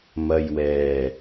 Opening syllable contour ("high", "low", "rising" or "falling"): low